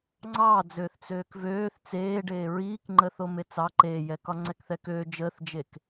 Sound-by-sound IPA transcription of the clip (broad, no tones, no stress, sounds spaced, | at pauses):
ŋ͡ǀ ɑː d͡z øː θ t͡s øː k v øː θ t͡s eː ɖ eː ɹ iː k ŋ͡ǃ əː θ o m e t͡s ɑ ǃ eː j ɛ k ɒ ŋ͡ǀ ɛ k θ ɛ k øː d͡ʒ əː θ d͡ʒ e k